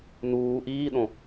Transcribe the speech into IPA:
n uː ʔ iː ɗ õ

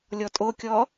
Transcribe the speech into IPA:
lʲ ɔ tʼ o kʲ ɔ

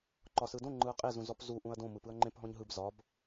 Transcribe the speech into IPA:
ǃ ɒ s ɯ d õ ŋ͡ǃ ɯ ɐ̯ qʼ e z ũ z ɔ p z u ʔ ũ ɐ̯ d õ m ɯ p ɯ ɐ̯ ŋ͡ǃ ẽ p ɦ ɔ̃ ɲ ɦ ɯ b z ɒ b

